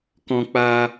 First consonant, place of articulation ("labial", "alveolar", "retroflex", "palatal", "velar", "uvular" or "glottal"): velar